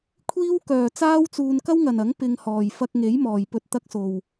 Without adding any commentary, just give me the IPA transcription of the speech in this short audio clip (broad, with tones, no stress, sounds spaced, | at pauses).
kʷʰ iː˥ w k œː˨ t͡s aː˥ w t͡s uː˧ n k ɐ˥ w ŋ ɐ˨ n ɐ˨˥ ŋ p ɪ˧ ŋ h ɔː˨˩ j f ɐ˧ k̚ ŋ e˨˥ j m ɔː˨˩ j p ɵ˨ t̚ t̪ ɐ˧ k̚ s o˨˩ w